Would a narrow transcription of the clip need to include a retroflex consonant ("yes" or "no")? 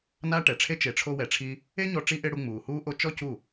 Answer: yes